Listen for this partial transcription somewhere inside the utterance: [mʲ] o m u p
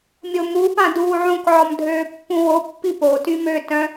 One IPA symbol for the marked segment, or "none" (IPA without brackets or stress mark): mʲ